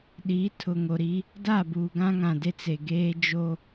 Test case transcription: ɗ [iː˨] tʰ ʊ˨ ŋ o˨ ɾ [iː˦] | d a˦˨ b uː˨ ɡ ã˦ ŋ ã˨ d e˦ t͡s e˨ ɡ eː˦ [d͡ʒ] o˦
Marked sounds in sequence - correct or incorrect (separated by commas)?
incorrect, incorrect, correct